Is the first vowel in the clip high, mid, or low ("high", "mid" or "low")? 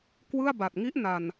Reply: high